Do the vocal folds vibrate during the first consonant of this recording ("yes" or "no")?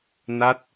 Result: yes